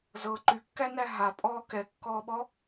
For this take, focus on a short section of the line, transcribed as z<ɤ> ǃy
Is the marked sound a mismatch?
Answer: no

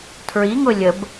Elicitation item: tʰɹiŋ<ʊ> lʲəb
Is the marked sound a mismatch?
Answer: no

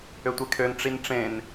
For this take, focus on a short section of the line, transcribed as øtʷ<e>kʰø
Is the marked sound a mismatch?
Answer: no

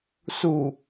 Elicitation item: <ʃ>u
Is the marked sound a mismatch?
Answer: yes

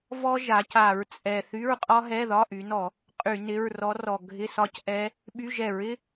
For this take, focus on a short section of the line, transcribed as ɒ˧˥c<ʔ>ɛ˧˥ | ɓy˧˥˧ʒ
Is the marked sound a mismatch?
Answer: no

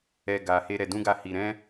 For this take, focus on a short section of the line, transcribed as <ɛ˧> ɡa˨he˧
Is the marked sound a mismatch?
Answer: no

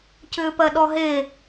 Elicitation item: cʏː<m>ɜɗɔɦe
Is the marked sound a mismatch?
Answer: yes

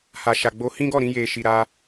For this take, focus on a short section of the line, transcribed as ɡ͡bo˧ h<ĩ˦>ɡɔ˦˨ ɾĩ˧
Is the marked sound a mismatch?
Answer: no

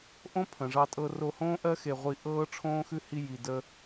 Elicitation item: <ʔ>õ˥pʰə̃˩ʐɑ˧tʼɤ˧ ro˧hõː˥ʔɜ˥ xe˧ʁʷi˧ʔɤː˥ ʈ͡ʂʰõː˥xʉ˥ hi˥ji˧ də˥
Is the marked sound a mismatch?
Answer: no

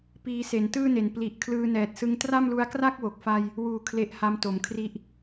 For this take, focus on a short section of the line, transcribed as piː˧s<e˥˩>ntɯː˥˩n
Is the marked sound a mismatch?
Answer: yes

